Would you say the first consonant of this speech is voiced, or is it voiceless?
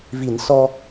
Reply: voiced